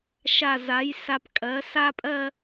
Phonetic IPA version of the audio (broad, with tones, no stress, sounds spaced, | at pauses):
ʃ a˧˩ z a˩˥ j s a˧˩ p kʼ ɜ˩˥ s a˥˧ pʼ ɜ˥˧